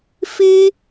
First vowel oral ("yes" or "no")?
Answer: yes